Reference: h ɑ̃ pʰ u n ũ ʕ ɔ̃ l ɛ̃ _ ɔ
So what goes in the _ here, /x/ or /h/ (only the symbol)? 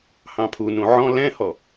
h